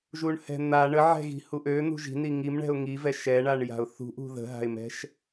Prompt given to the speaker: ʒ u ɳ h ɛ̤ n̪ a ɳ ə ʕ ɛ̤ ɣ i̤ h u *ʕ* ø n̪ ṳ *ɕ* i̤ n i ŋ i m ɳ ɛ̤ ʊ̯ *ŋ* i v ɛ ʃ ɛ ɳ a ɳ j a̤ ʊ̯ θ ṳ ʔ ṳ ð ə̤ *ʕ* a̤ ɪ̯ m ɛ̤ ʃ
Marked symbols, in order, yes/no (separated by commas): no, no, yes, no